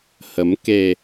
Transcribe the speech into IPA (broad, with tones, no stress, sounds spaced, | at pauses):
h ə˨˦ m k e˧